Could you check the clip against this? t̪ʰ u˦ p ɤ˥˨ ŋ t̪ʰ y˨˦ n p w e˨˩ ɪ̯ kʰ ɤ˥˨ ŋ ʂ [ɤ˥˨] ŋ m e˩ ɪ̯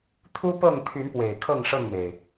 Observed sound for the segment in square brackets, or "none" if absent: ɤ˥˨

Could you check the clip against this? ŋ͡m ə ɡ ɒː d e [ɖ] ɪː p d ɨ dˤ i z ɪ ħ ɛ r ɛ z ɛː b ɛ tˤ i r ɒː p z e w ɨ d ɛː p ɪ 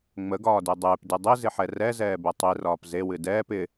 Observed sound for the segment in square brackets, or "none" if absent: dˤ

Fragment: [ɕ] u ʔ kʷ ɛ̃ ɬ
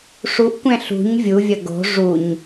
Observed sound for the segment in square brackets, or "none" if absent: ʂ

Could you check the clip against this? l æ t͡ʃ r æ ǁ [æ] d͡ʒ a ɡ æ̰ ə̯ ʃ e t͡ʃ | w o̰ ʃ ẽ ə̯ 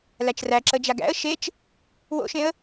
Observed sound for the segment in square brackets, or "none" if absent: ə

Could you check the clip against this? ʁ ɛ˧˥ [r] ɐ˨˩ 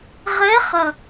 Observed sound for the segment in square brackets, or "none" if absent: χ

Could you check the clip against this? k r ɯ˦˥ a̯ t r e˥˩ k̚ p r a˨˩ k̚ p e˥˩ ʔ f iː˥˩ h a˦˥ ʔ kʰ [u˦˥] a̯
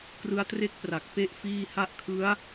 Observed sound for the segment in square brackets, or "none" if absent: ɯ˦˥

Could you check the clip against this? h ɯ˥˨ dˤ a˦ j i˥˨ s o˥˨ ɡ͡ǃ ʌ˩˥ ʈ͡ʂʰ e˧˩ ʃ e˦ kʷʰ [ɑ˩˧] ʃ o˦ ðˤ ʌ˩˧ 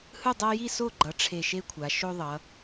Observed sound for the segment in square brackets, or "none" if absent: a˩˧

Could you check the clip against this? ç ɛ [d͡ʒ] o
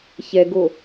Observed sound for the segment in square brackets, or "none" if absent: ɡ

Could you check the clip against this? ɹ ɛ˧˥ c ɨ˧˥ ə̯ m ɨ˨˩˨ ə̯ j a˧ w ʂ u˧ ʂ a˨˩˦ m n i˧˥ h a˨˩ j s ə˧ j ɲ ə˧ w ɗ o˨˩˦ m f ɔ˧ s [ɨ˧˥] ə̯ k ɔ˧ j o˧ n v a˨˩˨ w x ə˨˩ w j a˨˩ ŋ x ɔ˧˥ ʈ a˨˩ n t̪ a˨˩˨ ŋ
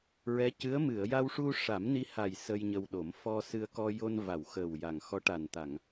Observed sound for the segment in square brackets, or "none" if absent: ɨ˧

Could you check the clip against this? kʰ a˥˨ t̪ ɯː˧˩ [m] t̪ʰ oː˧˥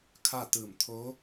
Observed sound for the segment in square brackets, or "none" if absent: m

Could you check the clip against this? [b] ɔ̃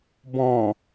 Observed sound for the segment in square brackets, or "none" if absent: b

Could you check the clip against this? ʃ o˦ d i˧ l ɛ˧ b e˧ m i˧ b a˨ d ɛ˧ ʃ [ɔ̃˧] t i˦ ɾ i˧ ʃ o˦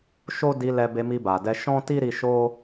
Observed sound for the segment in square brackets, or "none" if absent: ɔ̃˦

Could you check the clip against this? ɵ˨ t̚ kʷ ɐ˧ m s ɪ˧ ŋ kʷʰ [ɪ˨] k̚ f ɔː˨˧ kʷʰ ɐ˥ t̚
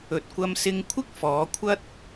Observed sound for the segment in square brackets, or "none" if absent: ɪ˥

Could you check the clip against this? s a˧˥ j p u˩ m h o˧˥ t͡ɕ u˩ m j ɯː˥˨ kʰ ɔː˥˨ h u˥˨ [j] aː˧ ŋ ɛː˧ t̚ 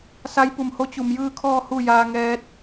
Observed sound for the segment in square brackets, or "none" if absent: j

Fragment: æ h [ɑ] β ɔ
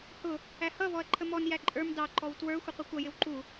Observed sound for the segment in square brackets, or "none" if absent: ʌ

